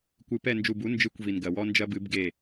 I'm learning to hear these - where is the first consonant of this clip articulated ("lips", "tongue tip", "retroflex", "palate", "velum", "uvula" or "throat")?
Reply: velum